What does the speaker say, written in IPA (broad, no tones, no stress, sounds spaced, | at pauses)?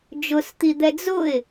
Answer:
d͡ʒ ʊ s t̪ i d̪ ɛ d͡z ʊ ɪ̯